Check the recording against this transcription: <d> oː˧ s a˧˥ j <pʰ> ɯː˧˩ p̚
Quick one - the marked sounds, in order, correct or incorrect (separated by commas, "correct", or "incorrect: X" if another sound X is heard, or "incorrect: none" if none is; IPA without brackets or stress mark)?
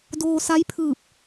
correct, correct